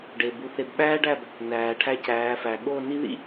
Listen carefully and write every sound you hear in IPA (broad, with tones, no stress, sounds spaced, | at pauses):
ɖ e˨ b u˨ θ e˨ b ɓ æː˦ ɖ æ˦˨ b | n æː˨ ʈʰ æ˦ c æː˨˦ f æ˨ ɠ o˦˨ n i˦ ð ḭ˦